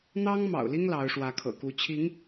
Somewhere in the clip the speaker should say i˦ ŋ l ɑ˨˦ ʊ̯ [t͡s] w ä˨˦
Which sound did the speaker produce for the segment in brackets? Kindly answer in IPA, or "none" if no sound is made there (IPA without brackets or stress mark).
ʂ